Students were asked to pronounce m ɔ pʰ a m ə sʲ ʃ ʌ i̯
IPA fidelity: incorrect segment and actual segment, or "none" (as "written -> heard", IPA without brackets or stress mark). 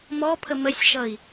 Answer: a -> ə